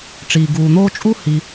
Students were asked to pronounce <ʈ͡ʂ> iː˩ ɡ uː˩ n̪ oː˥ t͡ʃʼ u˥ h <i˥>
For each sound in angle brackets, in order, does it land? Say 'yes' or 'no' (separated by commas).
yes, no